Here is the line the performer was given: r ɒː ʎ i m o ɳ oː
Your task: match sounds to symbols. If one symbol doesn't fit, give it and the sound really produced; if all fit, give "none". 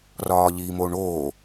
none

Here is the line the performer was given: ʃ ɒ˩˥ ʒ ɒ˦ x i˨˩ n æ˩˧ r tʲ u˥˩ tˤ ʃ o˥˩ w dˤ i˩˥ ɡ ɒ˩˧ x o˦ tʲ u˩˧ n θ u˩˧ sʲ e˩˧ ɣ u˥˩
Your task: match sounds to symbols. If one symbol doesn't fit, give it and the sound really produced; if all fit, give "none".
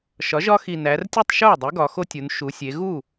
θ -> ʃ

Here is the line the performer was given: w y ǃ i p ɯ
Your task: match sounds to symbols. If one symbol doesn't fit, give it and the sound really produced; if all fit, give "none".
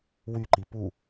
ɯ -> u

